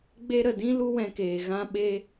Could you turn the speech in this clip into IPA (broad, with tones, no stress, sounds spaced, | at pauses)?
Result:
ɡ͡b e˧ ɾ ə˨ d ĩ˦ l u˦ w ɛ̃˧ k eː˨ ɣ ã˧ ɓ e˧